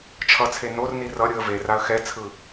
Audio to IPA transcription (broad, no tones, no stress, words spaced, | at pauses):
t͡ʃʰʌt͡sʰe norni rʌ ɾʲɯə̯veraə̯ xɛt͡sʰɯ